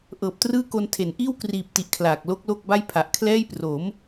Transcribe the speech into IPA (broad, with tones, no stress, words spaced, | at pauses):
ʔɤː˨˩p̚trɯː˥˩ko˧n tʰe˩˦n ʔiː˥˩wkriː˨˩p̚ti˨˩ʔ kʰlaː˨˩k̚ lo˦˥k̚lo˥˩k̚ba˥˩j pʰa˨˩ʔkʰlɛː˥˩jpro˩˦m